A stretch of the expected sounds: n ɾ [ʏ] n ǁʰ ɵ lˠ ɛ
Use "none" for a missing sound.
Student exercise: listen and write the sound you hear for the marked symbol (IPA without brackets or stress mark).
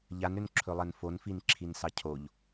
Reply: ʏ